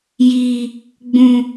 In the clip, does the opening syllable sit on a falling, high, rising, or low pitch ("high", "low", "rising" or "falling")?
low